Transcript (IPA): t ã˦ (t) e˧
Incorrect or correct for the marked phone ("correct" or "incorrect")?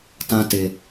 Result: correct